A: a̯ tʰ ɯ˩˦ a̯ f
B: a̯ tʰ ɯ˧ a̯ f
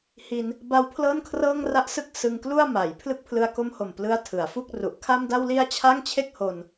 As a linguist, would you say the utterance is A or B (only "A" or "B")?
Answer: A